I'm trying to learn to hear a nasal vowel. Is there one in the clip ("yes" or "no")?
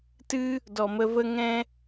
yes